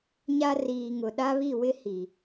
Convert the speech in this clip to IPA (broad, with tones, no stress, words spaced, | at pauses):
ɲa˦riː˨ ŋʊ˨ ɗa˦βi˦˨wɪ˦ hi˨